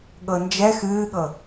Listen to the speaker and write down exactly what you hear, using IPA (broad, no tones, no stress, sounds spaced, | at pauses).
ɠ ɤ n d͡ʒ ɛ x ɨː ɠ ɤ